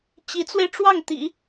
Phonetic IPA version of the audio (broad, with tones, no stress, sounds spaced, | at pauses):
t͡ɕ i˧˥ t͡s w e˧ ɪ̯ ʈ͡ʂ w ɑ˥˩ ŋ t̪ ḭ˨˩˦